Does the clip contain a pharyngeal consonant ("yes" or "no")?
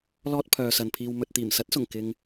no